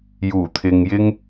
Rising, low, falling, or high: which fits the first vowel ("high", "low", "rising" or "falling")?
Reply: low